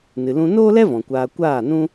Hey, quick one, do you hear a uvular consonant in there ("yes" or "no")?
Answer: no